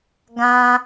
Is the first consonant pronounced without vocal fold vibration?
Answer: no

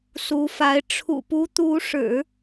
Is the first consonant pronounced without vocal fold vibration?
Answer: yes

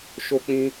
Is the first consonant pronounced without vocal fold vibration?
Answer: yes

